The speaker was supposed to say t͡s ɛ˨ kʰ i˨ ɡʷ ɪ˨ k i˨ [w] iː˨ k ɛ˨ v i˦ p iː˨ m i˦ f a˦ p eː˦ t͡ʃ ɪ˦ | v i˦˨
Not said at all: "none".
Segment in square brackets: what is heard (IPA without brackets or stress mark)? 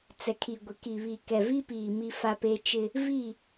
β